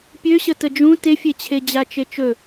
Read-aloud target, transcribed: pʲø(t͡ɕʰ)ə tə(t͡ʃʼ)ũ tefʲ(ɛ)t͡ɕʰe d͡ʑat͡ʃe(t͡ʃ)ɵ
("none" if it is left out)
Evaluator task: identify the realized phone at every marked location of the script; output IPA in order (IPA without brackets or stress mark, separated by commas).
ɕ, d͡ʒ, e, t͡ʃ